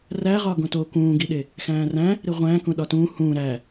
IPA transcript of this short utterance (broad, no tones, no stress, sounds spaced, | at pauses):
r æ ʁ ɒ ɡ õ t o k ũː ɡ i ɗ e | x æ̃ː r æ̃ | ɾ i ʁʷ æ̃ː k ũ ɗ ɒ t ũː h ũː ɾ æ